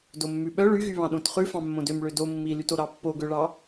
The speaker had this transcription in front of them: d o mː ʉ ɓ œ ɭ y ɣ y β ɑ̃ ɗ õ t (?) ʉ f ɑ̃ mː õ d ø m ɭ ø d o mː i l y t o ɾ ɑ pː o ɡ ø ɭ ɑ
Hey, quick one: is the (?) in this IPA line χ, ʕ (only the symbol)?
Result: χ